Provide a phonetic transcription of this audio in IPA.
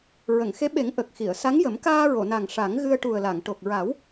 ɹ ə˨˩˨ ŋ x e˧˥ ɓ e˨˩˦ ŋ ʔ ə˨˩ k̚ x i˨˩˨ ə̯ s a˧˥ ŋ j ə˨˩˦ m k aː˧ ɹ o˨˩˨ n a˨˩ ŋ ʂ a˨˩˦ ŋ ɣ ɨ˧ ə̯ ʈ u˨˩ ə̯ l a˨˩˨ ŋ ʈ o˨˩ k̚ ɹ a˨˩˦ w

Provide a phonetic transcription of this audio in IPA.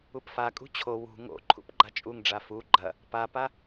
u p f a kʼ ṳ t͡ɕʰ o w ṳ ŋ o̰ ǃʰ ṵ p ɡ͡ǃ a t͡ʃʼ u ŋ ɖ͡ʐ a f u ɡ͡ǃ ɐ | p a p a

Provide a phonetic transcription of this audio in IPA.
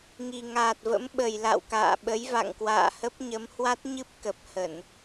ŋ i˨˩ ŋ aː˨˩ t̚ v ə̰˧˥ m ɓ ə˨˩ j l a̰˧˨ w k a̰ː˧˨ ɓ ə˨˦ j v a̰˧˨ ŋ k w a̰ː˧˨ h ə˦˥ p̚ ɲ ə˨˦ m h w a˦˥ t̚ ɲ ɨ˦˥ p̚ k ə˨˩ p̚ h ə˧˩˨ n

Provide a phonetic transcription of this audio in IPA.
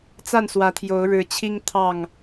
t͡s a˥˨ n s w ä˨˦ t̪ʰ j o˨˦ ʊ̯ ɻ ɻ̩˨˦ t͡ɕʰ i˦ ŋ t̪ʰ ɑ˥˨ ŋ

